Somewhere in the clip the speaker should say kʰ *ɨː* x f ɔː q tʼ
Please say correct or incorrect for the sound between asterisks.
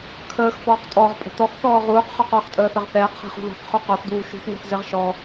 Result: incorrect: əː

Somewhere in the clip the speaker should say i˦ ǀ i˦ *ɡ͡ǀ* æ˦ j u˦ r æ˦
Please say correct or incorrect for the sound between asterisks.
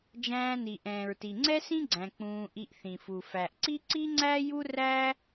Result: incorrect: ŋ͡ǀ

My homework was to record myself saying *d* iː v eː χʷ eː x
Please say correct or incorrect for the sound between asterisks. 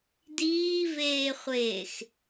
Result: correct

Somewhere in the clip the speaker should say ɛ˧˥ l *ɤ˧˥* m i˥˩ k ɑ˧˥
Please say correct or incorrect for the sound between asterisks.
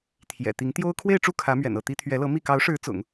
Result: correct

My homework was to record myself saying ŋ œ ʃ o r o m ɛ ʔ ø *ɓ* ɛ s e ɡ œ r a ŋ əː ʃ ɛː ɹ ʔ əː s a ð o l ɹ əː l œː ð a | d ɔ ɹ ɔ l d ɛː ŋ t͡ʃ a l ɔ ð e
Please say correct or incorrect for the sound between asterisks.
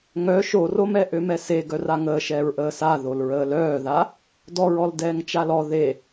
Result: incorrect: m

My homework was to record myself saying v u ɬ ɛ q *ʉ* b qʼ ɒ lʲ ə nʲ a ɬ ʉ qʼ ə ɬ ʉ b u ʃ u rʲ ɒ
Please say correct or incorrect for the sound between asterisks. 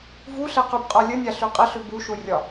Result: correct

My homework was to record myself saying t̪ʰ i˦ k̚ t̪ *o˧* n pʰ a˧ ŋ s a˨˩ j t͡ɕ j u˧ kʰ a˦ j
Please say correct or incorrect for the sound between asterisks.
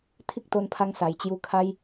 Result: correct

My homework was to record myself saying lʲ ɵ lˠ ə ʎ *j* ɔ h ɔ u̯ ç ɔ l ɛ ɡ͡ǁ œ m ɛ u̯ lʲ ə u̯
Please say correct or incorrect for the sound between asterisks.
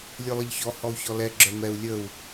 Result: incorrect: ç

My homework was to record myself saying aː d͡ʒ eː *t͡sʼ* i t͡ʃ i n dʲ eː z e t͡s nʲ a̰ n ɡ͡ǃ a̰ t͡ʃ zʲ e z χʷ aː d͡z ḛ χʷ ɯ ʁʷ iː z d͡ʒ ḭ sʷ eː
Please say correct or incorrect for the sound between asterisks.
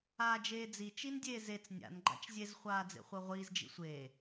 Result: incorrect: d͡z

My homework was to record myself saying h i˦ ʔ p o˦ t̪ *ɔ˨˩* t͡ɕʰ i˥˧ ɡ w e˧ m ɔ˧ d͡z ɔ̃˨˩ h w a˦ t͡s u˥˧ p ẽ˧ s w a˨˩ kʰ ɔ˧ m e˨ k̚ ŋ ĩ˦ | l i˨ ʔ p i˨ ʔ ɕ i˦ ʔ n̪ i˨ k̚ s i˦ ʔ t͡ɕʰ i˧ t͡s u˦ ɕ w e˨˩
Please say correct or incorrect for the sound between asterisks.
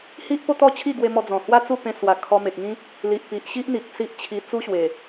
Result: incorrect: ɔ˥˧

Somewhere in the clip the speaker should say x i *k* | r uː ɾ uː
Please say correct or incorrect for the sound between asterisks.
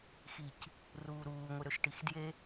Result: incorrect: c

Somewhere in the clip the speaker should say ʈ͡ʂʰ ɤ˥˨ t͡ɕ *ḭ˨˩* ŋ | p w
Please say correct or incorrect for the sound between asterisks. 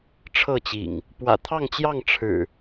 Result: correct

